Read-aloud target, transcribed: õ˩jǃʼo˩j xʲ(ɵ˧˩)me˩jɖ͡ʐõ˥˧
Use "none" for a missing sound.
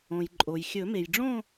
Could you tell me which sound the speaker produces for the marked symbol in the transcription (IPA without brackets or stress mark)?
ɵ˨˩˦